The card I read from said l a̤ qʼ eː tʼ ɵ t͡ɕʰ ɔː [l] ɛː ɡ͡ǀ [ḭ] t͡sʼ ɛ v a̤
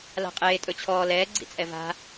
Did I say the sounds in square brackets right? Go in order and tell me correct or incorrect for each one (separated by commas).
correct, correct